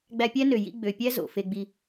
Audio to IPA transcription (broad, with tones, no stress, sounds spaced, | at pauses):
ɡ͡b æ˧ pʲ æ˦ n ø˨ j ḭ˧ ɡ͡b ø˨ pʲ æ˦ z o̰˨ f e˧ ɡ͡b i˧